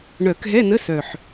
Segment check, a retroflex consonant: present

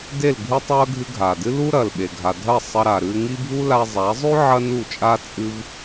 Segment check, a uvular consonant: absent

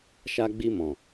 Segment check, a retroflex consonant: absent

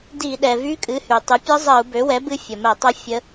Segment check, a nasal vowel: absent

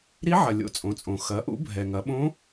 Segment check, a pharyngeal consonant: present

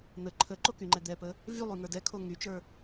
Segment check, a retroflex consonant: absent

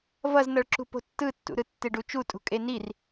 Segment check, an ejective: present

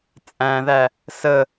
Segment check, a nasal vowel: present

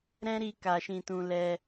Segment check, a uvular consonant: absent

